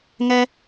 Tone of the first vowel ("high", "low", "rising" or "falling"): high